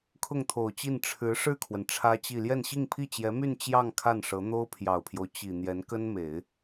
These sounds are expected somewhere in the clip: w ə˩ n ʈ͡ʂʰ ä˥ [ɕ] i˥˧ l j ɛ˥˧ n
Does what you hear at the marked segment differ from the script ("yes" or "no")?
yes